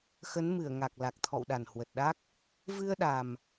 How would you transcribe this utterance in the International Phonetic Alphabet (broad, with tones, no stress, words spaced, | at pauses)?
xə˨˦nmɨ˧˩ə̯ ŋa˨˩k̚ la˨˩k̚t̪ʰɔ̰˧˨wɗa˧˩n hwə˨˩t̚ɗa˦˥k̚ | vɨ˧ə̯ɗa˨˩m